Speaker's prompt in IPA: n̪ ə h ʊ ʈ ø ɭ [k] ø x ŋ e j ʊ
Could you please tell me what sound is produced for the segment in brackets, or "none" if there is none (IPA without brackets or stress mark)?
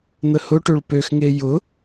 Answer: p